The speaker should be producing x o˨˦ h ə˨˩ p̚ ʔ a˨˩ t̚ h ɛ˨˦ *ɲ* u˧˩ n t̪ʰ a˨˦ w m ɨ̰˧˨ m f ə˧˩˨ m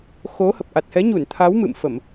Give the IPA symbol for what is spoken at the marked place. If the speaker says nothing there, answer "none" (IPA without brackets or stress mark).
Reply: ɲ